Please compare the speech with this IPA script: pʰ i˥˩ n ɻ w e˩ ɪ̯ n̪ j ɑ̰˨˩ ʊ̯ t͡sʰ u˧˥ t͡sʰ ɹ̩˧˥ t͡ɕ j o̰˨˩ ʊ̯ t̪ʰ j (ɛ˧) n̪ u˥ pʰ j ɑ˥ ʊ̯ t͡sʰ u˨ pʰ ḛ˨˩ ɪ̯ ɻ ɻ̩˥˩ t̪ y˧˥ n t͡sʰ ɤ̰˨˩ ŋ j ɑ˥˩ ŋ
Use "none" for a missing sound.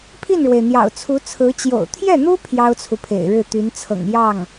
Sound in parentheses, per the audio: ɛ˥˩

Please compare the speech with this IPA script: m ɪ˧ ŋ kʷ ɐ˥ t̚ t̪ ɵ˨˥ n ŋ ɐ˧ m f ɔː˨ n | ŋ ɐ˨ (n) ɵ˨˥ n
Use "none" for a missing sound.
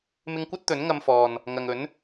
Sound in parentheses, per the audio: ŋ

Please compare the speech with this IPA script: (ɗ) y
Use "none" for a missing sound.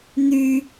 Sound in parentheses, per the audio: n̪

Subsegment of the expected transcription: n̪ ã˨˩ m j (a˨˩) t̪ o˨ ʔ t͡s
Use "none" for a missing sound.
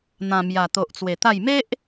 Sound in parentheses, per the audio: a˨˩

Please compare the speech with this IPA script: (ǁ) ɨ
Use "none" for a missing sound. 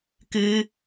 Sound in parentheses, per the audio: k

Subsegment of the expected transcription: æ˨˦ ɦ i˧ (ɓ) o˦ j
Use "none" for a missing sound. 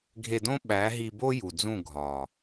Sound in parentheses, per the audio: b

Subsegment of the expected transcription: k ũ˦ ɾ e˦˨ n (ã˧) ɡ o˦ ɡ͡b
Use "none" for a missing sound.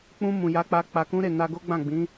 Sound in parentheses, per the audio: a˧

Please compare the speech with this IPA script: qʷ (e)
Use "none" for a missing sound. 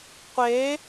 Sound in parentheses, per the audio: e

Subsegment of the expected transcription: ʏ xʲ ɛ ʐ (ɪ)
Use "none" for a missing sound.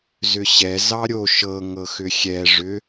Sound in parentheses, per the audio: ʏ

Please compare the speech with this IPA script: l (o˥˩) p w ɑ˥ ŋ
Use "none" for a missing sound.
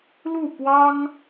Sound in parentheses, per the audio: u˥˩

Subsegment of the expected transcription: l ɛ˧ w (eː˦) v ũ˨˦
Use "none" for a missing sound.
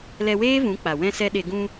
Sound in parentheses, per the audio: eː˦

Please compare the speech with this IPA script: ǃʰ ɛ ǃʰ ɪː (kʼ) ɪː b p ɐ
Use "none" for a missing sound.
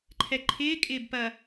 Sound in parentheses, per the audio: kʼ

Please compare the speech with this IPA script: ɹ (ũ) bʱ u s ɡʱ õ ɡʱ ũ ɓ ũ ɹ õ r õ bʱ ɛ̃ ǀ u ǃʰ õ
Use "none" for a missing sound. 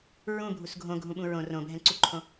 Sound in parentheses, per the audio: ũ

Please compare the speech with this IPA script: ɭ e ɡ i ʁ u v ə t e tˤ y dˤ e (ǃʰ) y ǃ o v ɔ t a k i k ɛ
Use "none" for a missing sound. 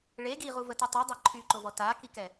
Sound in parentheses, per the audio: ǃʰ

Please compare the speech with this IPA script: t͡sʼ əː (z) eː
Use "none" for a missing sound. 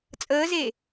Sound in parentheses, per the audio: z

